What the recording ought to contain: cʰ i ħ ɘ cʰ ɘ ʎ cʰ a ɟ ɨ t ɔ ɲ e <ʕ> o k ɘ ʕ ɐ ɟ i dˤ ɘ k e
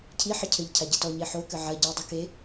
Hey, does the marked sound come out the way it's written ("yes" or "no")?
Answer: no